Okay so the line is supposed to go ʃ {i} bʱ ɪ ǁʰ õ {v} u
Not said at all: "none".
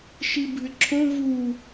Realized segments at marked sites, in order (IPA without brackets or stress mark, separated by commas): i, v